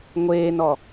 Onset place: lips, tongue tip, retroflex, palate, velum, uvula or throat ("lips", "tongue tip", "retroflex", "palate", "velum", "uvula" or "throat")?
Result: velum